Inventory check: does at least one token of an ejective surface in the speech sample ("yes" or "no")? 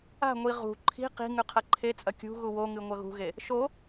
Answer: yes